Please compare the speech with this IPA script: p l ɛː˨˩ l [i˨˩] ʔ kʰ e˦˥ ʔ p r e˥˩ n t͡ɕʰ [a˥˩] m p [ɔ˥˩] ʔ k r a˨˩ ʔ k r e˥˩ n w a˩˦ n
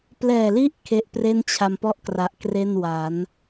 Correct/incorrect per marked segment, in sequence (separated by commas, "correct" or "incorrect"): incorrect, incorrect, correct